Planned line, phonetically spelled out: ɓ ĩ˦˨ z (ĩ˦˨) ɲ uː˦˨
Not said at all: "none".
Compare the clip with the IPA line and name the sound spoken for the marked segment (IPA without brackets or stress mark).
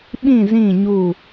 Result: ĩ˦˨